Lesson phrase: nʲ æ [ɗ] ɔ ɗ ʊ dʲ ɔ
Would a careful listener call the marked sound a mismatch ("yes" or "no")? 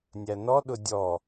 yes